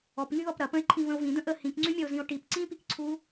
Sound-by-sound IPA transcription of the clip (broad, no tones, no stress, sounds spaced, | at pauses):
ɔ p ŋ y ð ɔ p ɾ ɐ p ə̃ e̯ ǃʰ ĩ v ə̃ o̯ v ĩ d̪ ə̃ ʔ ə h ĩ k ŋ͡ǀ y mʲ ɐ o̯ z ĩ o̯ ʈ i p ǀ ĩ p i k ǀʰ u